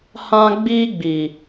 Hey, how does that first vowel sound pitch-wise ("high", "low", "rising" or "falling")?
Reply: high